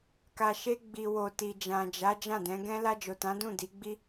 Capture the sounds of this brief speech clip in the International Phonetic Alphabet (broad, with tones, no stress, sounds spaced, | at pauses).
k a˨ ʃ e˧ ɡ͡b i˨ w o˨ t i˨ d͡ʒ ã˨ d͡ʒ a˨˦ d͡ʒ ã˦˨ d ɛ̃˨˦ ɡ ɛ̃˦ l a˧ d͡ʒ o˨ t ã˨˦ d ũ˦˨ d i˨˦ ɡ͡b i˦